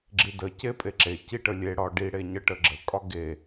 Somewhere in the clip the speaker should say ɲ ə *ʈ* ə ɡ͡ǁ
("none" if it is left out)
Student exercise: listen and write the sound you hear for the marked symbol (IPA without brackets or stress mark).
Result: ʈ